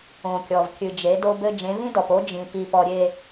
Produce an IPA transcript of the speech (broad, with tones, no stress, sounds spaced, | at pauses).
õ˨ kʲ ɔ˨ v kʲ ɨ˨ d͡ʒ e˨˦ d o˦ b ɘ˦ d͡ʒ ẽ˨˦ v ĩ˦ d ɔ˨ p o˦ d͡ʒ ĩ˨ p i˨ p ɔ˨ ɾʲ e˨